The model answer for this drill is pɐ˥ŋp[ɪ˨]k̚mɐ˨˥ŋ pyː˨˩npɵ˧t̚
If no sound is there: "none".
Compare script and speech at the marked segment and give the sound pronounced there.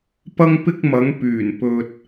ɪ˥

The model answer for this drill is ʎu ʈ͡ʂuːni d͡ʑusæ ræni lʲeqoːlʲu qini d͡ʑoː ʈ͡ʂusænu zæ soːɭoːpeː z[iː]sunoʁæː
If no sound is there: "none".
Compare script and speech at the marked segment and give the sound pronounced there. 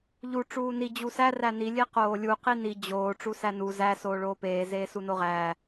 eː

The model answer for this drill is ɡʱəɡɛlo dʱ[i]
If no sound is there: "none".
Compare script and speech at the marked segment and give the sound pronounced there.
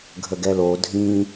ĩ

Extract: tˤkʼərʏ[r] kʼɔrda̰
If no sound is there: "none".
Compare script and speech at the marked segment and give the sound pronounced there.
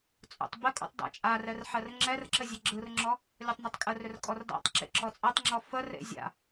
r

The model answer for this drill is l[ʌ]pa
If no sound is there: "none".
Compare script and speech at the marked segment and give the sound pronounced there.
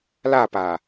a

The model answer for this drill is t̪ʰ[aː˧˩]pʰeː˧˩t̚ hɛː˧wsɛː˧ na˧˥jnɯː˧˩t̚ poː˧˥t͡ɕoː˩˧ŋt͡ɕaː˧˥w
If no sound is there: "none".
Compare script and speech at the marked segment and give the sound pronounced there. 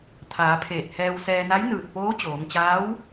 aː˩˧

